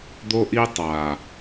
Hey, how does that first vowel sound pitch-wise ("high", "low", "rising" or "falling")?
high